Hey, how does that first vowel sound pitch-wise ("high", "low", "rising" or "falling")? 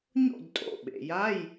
falling